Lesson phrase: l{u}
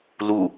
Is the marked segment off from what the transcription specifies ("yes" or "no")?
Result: no